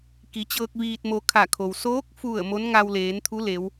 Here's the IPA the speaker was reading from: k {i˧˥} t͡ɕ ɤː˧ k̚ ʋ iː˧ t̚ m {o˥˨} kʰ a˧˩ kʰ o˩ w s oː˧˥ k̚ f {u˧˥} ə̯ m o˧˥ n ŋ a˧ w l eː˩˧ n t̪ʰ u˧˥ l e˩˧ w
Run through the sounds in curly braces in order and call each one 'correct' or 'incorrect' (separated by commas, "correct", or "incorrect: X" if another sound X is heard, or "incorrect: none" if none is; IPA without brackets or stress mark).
incorrect: i˩˧, incorrect: o˧, incorrect: u˧˩